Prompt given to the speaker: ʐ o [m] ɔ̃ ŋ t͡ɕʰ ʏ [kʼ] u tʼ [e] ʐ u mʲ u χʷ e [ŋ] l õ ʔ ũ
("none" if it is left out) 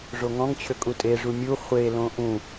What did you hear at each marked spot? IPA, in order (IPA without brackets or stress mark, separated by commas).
ŋ, kʼ, e, none